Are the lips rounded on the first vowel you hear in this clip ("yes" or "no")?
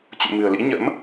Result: yes